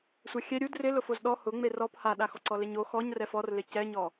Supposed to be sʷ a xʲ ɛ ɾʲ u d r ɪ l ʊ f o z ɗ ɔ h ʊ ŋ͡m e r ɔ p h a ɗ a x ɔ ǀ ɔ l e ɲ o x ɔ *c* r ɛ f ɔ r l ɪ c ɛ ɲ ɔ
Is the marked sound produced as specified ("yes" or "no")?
no